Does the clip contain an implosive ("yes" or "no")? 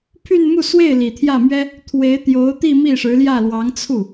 no